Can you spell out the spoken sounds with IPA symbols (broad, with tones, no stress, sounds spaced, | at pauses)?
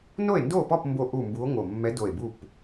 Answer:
n o˥˨ e̯ n d o˥˨ p ɔ˥˨ p m b o˥˨ ʔ u˥˨ m b u˧˥ o̯ ŋ o˧˩ mː ɛ˧˥ d o˧˩ e̯ b u˥˨ p